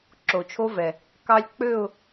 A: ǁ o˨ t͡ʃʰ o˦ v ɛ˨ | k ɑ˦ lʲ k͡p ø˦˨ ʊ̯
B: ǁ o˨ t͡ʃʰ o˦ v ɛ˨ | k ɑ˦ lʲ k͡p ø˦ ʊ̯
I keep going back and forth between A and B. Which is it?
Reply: A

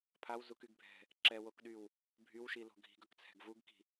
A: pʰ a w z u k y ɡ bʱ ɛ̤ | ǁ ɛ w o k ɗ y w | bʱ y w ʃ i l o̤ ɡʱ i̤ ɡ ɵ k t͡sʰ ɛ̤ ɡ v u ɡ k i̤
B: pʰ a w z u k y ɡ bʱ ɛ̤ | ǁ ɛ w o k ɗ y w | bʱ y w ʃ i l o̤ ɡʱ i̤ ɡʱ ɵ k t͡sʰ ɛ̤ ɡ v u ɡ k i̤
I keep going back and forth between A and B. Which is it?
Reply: A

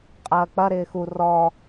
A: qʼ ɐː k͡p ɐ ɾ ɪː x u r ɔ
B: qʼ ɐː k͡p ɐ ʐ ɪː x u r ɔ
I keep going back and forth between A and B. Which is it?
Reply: A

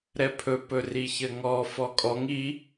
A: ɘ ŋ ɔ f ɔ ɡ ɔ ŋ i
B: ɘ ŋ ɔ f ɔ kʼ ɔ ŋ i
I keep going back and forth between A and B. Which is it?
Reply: B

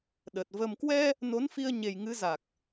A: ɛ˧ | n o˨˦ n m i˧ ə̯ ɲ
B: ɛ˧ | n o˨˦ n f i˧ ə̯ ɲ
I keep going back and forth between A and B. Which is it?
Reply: B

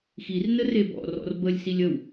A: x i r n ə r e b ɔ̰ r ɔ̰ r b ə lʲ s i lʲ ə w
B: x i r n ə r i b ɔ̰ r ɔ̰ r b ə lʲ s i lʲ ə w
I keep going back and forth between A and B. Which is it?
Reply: A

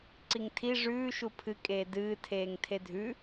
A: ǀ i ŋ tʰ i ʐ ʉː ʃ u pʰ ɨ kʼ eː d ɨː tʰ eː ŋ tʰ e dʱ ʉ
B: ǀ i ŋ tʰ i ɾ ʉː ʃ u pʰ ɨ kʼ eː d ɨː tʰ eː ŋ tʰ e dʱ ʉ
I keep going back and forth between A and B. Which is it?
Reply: A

